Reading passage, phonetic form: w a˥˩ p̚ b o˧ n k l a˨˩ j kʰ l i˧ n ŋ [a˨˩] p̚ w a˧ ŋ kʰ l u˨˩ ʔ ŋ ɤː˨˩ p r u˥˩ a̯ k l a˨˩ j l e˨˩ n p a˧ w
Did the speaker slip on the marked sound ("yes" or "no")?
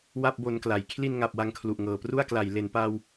no